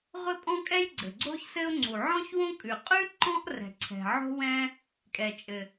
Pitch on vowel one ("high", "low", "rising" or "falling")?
high